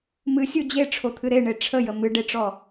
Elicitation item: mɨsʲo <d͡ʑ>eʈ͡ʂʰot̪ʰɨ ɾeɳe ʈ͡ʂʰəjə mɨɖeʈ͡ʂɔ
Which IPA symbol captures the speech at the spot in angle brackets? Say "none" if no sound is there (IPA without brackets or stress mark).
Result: d͡ʑ